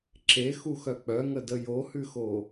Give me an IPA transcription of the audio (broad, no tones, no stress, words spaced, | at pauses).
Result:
ǁexuxœ k͡pœŋədə johʉxo